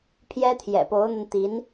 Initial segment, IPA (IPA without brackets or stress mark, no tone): pʰ